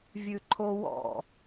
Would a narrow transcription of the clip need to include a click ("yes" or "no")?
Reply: yes